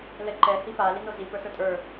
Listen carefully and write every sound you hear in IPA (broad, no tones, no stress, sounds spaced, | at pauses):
l ɛ ǃ ɛ h i p a l i n o z i p ə˞ s ə˞ tʼ ə˞